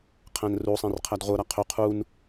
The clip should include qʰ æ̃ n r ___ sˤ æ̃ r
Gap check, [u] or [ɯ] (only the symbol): u